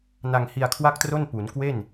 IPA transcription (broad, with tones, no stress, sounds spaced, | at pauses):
n a˧ ŋ h i˧ a̯ kʰ w a˥˩ k̚ t r o˥˩ n p u˩˦ n k w e˥˩ n